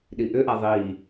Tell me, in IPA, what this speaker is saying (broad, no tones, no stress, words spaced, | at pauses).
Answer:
ɗiʔʏʔa ðˤi